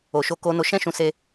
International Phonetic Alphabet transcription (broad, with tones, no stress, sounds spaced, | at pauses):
o˨ ʃ o˧ k o˧ n o˧ ʃ ɛ̃˦ ʃ ũ˧ s e˦